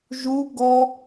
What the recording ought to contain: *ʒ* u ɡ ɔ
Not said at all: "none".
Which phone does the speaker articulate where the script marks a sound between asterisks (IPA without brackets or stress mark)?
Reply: ʒ